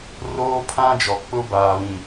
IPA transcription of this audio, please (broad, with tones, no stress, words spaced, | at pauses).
roː˦pʰã˦d͡ʒɔ˨k͡pʊ˦ baː˨βĩ˨